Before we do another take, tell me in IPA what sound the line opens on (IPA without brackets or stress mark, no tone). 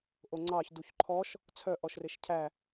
ʔ